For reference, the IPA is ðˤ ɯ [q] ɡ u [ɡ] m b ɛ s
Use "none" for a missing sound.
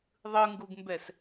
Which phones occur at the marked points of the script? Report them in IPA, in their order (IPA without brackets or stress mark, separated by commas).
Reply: ŋ, ɡ